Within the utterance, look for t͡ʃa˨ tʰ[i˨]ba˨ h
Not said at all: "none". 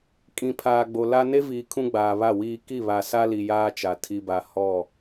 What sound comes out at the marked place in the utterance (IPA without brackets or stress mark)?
i˨